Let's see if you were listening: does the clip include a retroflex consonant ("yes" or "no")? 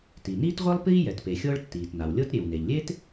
yes